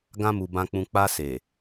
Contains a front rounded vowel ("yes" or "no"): no